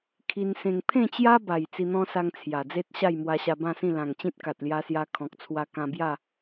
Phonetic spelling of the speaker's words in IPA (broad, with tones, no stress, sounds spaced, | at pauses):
kʰ i˧ n s ẽ˧ ŋ pʰ ẽ˥˧ t͡ɕ j a˦ b a˨˩ j t͡s i˧ n̪ ɔ̃˦ s a˧ ŋ t͡sʰ j a˨˩ d͡z e˦ t̚ ɕ a˥˧ j m w a˧ ɕ a˧ b ã˥˧ s ĩ˥˧ l ã˨˩ ŋ t͡ɕ ĩ˦ t̚ k a˨ t̚ l j a˧ s j a˧ kʰ ɔ̃˨ k̚ t͡sʰ w a˧ k ã˧ b j a˥˧